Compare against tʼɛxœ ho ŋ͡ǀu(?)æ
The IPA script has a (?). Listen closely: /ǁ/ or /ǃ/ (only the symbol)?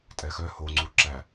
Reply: ǁ